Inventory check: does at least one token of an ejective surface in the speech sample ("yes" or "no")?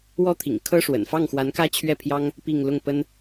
no